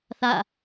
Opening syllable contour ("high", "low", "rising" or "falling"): falling